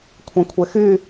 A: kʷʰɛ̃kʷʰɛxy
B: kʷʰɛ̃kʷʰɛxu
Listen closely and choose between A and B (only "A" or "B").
A